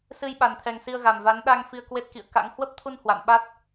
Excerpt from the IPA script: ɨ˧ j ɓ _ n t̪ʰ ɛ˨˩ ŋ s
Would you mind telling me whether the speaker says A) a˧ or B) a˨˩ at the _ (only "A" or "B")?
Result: B